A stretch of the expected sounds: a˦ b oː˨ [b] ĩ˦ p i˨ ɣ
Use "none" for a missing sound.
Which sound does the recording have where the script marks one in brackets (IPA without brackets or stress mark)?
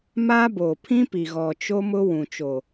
pʰ